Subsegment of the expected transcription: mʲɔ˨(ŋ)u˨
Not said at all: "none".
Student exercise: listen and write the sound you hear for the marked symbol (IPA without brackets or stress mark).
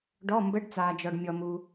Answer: m